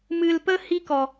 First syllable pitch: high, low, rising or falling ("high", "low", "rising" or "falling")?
low